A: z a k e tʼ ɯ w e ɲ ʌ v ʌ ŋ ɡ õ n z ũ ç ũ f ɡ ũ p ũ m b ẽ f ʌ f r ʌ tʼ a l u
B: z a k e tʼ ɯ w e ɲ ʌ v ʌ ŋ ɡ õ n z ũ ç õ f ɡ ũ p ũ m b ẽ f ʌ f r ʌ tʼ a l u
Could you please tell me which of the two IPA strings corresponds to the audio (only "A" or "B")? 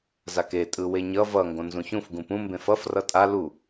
A